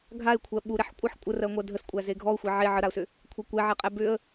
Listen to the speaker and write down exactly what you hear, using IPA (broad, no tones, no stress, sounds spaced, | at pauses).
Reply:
ɡʱ a ɪ̯ kʷʰ ɜ ɓ u ɾ ɛ ħ kʷʼ ʌ ħ kʷʼ ə r ɜ ŋʷ ɜ dʱ ə s kʷʼ æ z e ɡʱ ɔ ʊ̯ xʷ e ʕ e ʕ ə ɾ a ʊ̯ s ʏ | kʷʰ ɛ kʷ ɛ ʕ ɛ qʼ æ b ʏ ə̯